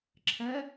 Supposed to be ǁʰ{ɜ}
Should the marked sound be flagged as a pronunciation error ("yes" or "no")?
no